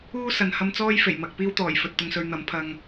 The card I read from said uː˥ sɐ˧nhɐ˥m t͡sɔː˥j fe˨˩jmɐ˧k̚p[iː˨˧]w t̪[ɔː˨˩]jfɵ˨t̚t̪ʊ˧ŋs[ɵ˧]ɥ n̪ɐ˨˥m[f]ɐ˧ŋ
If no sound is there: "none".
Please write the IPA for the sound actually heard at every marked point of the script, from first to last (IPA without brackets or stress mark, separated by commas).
iː˥, ɔː˨˩, ɵ˧, pʰ